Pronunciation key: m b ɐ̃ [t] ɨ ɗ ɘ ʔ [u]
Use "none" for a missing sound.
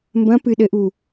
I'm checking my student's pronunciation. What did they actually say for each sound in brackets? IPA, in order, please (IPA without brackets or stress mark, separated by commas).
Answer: p, u